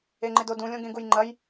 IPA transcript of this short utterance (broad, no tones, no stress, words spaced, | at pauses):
eŋ͡ǃɪdodũ lʲõɡẽɡujŋ͡ǃɐj